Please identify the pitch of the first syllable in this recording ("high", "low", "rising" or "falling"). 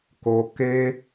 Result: high